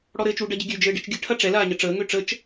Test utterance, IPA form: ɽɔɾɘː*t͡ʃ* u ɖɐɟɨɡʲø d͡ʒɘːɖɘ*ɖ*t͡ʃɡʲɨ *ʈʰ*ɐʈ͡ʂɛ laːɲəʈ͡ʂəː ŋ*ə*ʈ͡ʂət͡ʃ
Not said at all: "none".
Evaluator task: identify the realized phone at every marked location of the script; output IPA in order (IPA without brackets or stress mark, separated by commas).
t͡ʃ, none, ʈʰ, ø